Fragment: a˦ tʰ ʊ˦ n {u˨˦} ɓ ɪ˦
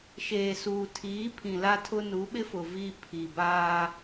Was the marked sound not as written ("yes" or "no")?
no